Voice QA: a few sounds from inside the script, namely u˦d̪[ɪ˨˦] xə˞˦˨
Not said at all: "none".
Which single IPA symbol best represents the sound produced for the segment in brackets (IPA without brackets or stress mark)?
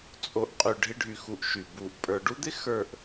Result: ɪ˦